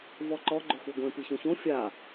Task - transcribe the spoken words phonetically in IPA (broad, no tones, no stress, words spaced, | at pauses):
vɔǃɔ ɡ͡ǃoxuɡʷẽ piçõçõ fʲa